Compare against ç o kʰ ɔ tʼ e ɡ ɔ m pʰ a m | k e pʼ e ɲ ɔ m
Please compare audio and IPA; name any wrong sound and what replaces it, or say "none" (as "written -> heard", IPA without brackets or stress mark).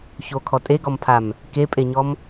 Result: none